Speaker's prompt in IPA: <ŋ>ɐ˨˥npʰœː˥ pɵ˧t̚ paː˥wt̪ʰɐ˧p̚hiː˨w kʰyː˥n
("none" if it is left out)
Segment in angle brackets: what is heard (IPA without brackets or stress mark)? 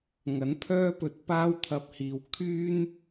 ŋ